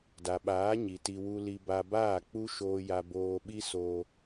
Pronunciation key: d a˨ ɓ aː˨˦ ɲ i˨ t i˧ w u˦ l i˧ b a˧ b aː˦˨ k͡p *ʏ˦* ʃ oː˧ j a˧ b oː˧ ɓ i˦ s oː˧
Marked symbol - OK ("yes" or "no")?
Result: no